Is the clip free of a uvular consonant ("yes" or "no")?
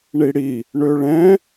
yes